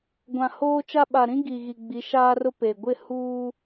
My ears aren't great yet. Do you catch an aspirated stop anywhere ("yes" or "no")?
no